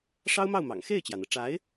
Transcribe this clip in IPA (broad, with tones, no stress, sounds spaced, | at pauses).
ʂ ɑ˥ ʊ̯ m ɑ˥˩ ʊ̯ m ɑ̰˨˩ ŋ x e˥˩ ɪ̯ t͡ɕ j ä˩ n̪ ɤ˩ ʈ͡ʂ a˧˥ ɪ̯